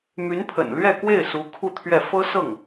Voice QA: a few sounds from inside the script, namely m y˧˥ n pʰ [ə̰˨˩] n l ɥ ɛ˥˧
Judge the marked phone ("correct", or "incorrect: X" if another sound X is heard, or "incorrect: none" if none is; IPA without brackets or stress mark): correct